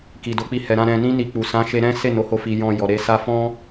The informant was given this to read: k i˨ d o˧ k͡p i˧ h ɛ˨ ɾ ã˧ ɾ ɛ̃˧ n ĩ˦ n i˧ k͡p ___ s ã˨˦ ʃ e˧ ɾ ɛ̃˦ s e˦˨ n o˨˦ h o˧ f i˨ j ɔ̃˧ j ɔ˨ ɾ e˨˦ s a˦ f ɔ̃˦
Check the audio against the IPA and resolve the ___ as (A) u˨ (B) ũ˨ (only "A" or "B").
A